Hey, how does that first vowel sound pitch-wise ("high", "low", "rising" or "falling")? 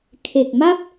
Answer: low